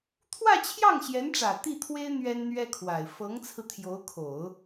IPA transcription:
t̪ʰ w ä˥˧ t͡ɕʰ j ɑ˥˩ ŋ ɕ j ɛ˧˥ n ʈ͡ʂ ä˨˩ t̪ i˥˩ t̪ʰ w e˥ ɪ̯ n̪ ɥ ɛ˥ n n̪ ɥ ɛ˥ kʰ w a˨˩ ɪ̯ f ɤ˧˥ ŋ t͡sʰ ɹ̩˧ t̪ʰ j o˧˥ ʊ̯ kʰ o˨˩˦ ʊ̯

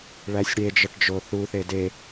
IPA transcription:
ɭ æ sʲ ɽ e d͡ʒ ɒ ʈ d͡ʒ o θ u θ e d e

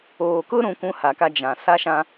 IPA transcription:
oː˨ k ʊ˦ ɾ ũ˨ kʷ ũ˦ h a˨ k a˦ d͡ʒ ã˨ s a˦ ʃ ã˦

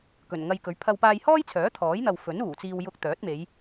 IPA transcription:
k ɵ˨˩ n ŋ ɐ˧ j k ɵ˨˥ ɥ pʰ ɐ˧ w p aː˧ j h ɔː˥ j t͡sʰ œː˨˥ t̪ʰ ɔː˨˥ j n̪ ɐ˨ w f ɵ˨˥ n uː˨˩ t͡s iː˧ w j ʊ˧ k̚ t̪ œː˨˥ t̚ m e˨˧ j

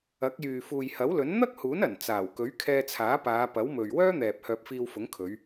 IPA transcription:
ɐ˨˥ k̚ j yː˨ f uː˨ j h ɐ˨˥ w l ɵ˨˥ n n̪ ɐ˥ k̚ h uː˨˥ n ɐ˨˩ n t͡s aː˨˩ w k ɵ˨˥ ɥ kʰ ɛː˧ t͡sʰ aː˨˥ p aː˨˧ p ɐ˨˥ w m ɵ˨ ɥ w œː˥ n̪ ɛː˨ p̚ h œː˧ p̚ f iː˧ w f ʊ˨˥ ŋ kʰ ɵ˨˧ ɥ

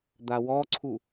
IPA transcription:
d̪ a w ɔ ǀʰ u

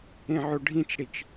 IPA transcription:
ẽ ʕ o ɖʱ ĩ t͡ʃ ɽ i t͡ʃ

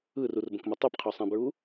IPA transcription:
ɯ r u r b ə̃ k m ə tˤ ɯ p qʰ ø sˤ ɛ̃ b ɹ u

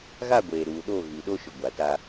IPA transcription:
ɣ a˦˨ ɡʷ eː˨ ɾ uː˨ ɗ o˦˨ ɣ i˨ ɗ o˦ ʃ ʊ˨ ɡʷ a˨ t a˦

